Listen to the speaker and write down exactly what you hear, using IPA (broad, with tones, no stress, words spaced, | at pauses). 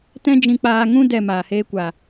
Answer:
tɛ̃˦d͡ʒĩ˧k͡paː˧ ŋũ˦ dɛ˦˨maː˨heː˦kʷa˨